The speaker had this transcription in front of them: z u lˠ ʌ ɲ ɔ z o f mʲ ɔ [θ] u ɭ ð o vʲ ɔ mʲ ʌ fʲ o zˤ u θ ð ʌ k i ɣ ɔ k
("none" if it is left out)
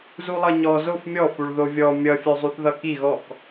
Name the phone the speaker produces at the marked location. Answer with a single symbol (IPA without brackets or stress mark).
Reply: f